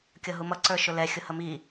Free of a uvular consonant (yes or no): yes